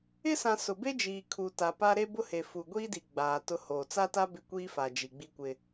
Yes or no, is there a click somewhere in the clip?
no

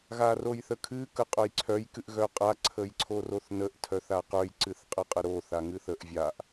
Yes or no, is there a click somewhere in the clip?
yes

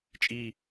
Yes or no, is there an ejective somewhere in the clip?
yes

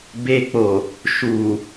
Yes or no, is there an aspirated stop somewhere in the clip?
no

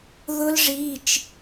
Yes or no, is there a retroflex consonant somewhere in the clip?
yes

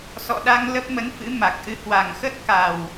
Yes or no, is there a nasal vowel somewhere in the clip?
no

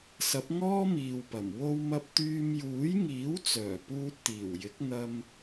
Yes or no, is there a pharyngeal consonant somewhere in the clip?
no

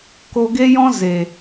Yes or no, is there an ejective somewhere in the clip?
no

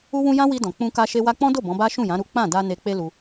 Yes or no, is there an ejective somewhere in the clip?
no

